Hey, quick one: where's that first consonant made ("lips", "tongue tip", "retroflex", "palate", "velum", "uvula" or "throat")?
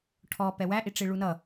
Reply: retroflex